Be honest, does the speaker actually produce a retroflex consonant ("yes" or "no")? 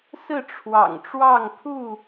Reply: yes